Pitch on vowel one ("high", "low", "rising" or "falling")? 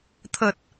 low